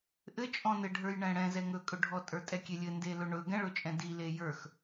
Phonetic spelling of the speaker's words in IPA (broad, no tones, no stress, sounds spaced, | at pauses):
ʔ ɘ t͡ʃʼ ɔ̃ n ɘ ɖʱ ə˞ j ɳ ɛ̃ ɽ ɛ̃ z ɛ ŋ ɵ kʼ ɵ ɖʱ ɔ tʼ ə˞ tʼ ɛ kʲ e lʲ ɘ n d e l ɵ ɳ ɵ ɡ ɛ̃ ɭ ɵ t͡ʃʼ ɛ̃ d i l e j ə˞ x